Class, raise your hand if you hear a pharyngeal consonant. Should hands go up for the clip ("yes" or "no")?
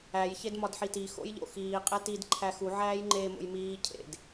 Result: yes